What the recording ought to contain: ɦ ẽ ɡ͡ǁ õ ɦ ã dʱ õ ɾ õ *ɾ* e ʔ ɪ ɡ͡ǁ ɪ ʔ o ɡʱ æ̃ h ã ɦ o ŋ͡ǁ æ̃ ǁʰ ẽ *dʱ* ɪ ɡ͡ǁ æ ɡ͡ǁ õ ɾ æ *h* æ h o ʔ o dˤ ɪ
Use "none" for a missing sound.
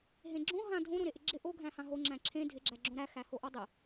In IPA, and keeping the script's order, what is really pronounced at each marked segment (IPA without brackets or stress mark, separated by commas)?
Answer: ɾ, dʱ, x